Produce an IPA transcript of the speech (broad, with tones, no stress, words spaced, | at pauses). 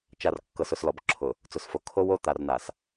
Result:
t͡ʃa˨r kːɤ˨sʊ˨slɔ˨b ǁʰʊ˨ | t͡sʊ˨sfo˨ kʰo˦wo˦ t̪a˨rna˨s